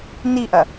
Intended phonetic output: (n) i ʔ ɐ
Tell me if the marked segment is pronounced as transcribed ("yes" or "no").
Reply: yes